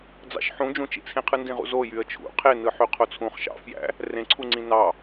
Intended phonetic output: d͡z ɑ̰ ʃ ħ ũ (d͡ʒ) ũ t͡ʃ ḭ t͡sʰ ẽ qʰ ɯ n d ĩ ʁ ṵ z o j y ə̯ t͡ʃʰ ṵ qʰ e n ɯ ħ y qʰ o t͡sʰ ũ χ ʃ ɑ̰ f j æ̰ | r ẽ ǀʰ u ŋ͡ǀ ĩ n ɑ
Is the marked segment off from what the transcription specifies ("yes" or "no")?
no